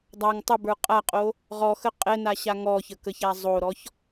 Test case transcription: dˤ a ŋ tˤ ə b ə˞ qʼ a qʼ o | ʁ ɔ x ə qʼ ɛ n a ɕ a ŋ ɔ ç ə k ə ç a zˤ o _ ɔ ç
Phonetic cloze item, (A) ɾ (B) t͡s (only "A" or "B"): A